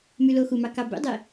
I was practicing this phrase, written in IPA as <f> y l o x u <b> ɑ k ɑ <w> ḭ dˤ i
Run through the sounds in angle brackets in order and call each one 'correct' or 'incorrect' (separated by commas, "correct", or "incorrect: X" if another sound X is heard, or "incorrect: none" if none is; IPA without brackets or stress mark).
incorrect: m, incorrect: m, incorrect: b